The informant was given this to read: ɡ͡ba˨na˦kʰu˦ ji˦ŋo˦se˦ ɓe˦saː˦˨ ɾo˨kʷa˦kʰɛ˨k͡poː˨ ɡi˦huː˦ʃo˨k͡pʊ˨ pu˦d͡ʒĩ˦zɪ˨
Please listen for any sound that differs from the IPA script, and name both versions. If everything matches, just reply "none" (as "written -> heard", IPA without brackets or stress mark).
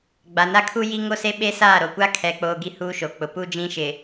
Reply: z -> ʃ